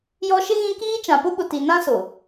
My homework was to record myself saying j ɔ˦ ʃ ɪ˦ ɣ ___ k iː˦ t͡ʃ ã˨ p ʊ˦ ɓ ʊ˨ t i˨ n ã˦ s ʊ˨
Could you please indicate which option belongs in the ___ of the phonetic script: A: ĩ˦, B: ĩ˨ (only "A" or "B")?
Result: A